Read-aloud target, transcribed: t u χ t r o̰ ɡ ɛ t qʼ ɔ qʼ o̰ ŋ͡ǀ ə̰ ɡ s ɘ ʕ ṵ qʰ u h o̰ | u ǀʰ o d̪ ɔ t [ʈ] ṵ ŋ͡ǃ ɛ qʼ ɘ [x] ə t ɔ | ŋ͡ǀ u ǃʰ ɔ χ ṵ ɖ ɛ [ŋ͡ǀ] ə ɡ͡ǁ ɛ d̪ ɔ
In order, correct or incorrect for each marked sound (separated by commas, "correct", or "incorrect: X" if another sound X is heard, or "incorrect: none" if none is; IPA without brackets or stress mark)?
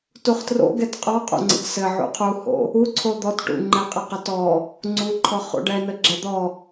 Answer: correct, incorrect: q, incorrect: n